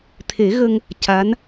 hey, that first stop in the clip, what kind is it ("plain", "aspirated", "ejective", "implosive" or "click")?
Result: aspirated